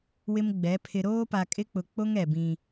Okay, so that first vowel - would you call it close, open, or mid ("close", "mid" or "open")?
close